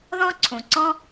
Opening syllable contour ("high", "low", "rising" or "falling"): high